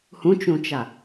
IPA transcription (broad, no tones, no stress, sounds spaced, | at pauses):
h ũ t͡ʃ ũ t͡ʃ a